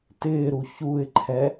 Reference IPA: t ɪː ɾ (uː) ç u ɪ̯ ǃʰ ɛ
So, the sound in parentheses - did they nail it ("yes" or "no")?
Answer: no